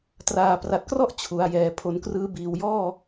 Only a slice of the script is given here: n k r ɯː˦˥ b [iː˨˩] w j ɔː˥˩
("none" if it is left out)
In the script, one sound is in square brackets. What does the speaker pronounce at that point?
iː˨˩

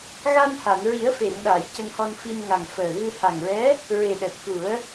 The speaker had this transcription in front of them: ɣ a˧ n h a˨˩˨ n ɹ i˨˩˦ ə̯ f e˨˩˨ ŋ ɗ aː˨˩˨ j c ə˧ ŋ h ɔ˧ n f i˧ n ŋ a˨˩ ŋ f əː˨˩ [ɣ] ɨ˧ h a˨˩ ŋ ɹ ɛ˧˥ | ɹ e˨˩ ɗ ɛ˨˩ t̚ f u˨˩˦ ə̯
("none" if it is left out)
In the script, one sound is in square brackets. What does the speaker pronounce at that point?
ɣ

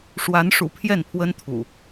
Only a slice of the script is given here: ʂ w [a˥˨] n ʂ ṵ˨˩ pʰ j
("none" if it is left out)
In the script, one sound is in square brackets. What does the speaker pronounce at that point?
a˨˦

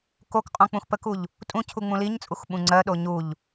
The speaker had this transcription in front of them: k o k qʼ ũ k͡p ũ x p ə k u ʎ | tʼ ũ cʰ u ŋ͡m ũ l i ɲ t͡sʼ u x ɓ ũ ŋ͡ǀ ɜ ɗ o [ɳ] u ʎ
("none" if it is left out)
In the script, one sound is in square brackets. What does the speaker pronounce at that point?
ɲ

